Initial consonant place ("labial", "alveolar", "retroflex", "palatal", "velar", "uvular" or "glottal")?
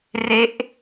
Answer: alveolar